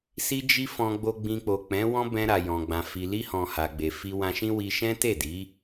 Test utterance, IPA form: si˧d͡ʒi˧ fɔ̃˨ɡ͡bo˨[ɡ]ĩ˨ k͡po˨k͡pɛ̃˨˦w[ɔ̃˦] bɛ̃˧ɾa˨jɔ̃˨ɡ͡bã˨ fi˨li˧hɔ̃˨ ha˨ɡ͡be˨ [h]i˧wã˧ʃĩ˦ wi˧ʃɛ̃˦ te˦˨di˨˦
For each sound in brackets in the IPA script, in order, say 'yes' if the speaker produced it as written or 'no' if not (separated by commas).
no, yes, no